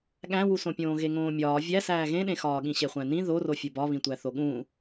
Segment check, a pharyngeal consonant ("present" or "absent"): absent